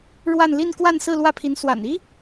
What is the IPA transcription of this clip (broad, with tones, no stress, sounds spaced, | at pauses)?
ɻ w a˥˧ n l i˥˧ n k w a˥˧ n s ɹ̩˥˧ l w ä˥˩ pʰ i˧˥ n s w a̰˨˩ n i˥